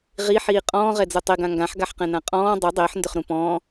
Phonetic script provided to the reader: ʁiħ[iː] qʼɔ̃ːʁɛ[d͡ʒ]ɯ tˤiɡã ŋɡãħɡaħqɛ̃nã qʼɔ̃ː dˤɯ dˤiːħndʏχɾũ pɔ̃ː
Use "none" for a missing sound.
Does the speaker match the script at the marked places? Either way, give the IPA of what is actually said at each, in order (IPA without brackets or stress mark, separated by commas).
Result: iː, d͡z